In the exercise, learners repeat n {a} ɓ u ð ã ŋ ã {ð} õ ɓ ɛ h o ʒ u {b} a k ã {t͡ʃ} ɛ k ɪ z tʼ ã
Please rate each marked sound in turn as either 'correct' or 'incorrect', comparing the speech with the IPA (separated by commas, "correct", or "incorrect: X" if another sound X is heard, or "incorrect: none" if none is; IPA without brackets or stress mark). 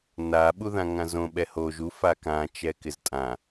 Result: correct, incorrect: z, incorrect: f, correct